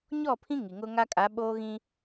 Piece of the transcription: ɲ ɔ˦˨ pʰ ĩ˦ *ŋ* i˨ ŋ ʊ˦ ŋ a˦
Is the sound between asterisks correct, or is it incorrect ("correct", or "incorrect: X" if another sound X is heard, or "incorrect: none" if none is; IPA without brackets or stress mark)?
correct